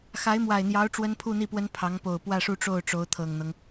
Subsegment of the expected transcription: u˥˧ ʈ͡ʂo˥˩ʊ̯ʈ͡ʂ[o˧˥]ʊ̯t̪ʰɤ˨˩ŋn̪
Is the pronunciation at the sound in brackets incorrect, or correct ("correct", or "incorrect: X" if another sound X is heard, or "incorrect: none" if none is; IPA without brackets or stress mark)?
correct